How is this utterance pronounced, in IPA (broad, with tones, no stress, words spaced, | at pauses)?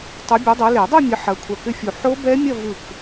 tˤu˨˦bʲu˨˦dˤʏ˨˦ le˨˩˦dˤu˥˧mʲə˨˦ ħɐ˨˦kʷʰɐ˧˩kʏ˥˧fʲu˧˩ ħo˦˥bɛ˦˥mʲɐ˥˧ vɯ˧˩k